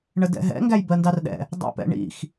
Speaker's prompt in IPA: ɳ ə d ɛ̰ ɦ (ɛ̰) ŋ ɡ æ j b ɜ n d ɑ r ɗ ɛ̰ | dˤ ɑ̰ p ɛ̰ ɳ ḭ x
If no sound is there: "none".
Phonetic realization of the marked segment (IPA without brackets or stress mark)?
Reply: ɛ̰